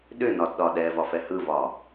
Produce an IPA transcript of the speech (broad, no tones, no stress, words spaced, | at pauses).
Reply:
ɗʏnɒdɗɒ ɗɛvɒfɛ hɯvɒ